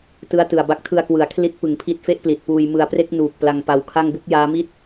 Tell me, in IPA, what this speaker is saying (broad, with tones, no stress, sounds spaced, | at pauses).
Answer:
t ɯ˦˥ a̯ t ɯ˨˩ a̯ b a˦˥ k̚ tʰ ɯ˧ a̯ k w ɯ˩˦ a̯ kʰ l i˦˥ t̚ p ɯ˨˩ ŋ pʰ i˦˥ t̚ f e˥˩ ʔ p l i˨˩ t̚ p uː˧ j m ɯ˧ a̯ p r e˥˩ k̚ n uː˨˩ k̚ p l a˧ ŋ p a˧ w kʰ a˥˩ ŋ b u˥˩ k̚ j aː˦˥ m i˥˩ t̚